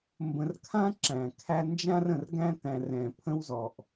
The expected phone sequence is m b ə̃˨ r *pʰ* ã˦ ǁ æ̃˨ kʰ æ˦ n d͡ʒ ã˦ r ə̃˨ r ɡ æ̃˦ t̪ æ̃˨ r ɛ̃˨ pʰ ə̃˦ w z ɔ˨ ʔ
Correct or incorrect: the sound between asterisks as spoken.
incorrect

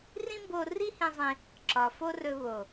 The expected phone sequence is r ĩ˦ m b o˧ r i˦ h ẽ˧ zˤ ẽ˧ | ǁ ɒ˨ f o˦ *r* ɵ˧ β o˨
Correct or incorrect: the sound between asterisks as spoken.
correct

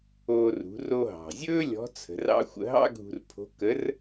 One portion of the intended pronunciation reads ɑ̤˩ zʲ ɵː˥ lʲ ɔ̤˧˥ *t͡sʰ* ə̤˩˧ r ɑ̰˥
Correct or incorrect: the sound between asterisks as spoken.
correct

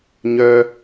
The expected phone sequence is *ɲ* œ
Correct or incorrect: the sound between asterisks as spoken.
correct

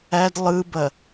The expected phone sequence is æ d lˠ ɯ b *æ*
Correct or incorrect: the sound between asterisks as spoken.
incorrect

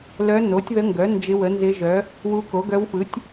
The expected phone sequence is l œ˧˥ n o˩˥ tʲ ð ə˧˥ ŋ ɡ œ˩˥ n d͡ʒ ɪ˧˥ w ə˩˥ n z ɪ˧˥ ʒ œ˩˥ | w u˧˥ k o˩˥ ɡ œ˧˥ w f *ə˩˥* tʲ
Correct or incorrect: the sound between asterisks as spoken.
incorrect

